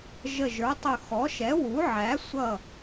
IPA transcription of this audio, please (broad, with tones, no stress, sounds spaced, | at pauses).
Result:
ʒ ə˧˩ ʒ ə˞˩˥ tˤ ʊ˧˩ x ɔ˩˥ ʃ ɛ˩˥ w u˩˥ ʕ æ˩˥ sʷ ʌ˧˩